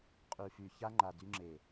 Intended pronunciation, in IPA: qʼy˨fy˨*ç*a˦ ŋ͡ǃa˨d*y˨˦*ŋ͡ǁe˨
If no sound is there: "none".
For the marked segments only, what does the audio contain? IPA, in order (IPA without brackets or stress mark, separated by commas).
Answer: ç, y˦